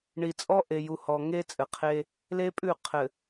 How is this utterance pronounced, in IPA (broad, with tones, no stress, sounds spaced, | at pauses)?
ɳ i˨ t͡sʼ ɔ˦ ʔ e˨ j u˨ h ɔ˨ ŋ e˦ t͡sʼ ɘ˨ qʰ e˦ | l e˦ pʼ ʉ˦˨ qʰ ɘ˨